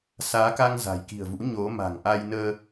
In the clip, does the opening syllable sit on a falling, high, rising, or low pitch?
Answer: rising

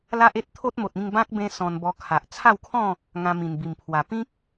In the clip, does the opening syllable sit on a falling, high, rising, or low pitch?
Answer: high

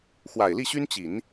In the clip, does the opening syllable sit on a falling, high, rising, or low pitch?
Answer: low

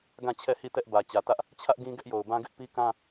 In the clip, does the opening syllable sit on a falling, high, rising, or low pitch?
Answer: falling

